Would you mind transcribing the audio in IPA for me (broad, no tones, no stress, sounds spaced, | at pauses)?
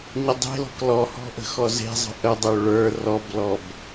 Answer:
ɲ ə dˤ e̤ l ɔ̤ k l ɔ h ɔ̤ ʔ ə̤ x ɔ z e̤ zˤ ə̤ ʔ ə dˤ ø ɭ ə˞ r ɔ b l ɔ b